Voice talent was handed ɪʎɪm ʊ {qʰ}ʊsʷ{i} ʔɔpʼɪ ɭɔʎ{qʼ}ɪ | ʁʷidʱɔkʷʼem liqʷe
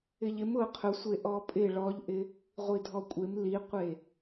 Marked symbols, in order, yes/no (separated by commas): yes, no, no